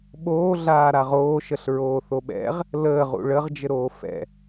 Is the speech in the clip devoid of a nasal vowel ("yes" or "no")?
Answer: yes